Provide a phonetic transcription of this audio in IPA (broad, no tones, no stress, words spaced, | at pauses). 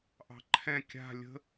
ʔɑ̤ǃʰɛ̃ kʲa̤ lʲə̤